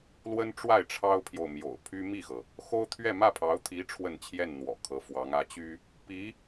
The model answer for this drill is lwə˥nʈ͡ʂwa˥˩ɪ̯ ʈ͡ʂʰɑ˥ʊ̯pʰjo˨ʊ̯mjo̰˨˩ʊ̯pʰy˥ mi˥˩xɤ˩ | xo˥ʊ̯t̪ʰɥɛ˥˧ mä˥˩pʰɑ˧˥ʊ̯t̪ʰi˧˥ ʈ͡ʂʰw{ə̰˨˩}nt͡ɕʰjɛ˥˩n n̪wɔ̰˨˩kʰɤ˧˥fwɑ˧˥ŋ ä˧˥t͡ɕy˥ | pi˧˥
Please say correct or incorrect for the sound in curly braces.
incorrect